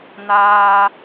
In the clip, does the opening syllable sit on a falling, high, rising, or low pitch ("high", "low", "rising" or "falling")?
low